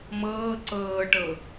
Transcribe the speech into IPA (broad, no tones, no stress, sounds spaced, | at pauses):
m ɤː ǀ ɤː ʈ ɤ